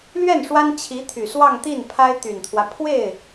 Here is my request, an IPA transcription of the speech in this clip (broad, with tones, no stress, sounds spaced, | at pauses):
l ɥ ɛ˥˩ n ʂ w a˥ n t͡ɕʰ i˧˥ t̪ʰ y˨˩ s w ɑ˥˧ ŋ t̪ i˥˩ n pʰ a˥ ɪ̯ t̪ y˨˩ n t̪ʰ w ä˦ pʰ w e˥˩ ɪ̯